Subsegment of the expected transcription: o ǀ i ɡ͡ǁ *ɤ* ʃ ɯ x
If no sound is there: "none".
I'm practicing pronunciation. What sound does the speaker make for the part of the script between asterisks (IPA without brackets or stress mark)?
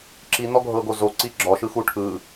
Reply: ɔ